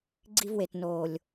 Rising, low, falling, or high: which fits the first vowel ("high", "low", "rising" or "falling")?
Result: high